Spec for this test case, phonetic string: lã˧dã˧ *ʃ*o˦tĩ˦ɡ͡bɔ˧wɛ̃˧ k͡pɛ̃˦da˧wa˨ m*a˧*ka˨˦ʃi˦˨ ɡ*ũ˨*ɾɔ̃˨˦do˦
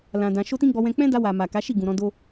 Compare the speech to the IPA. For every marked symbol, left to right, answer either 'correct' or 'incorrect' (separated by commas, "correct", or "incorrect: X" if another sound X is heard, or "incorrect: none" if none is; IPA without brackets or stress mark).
correct, incorrect: a˨, correct